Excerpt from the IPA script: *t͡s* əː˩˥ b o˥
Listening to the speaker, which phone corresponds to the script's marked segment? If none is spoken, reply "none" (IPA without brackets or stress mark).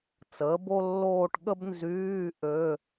t͡s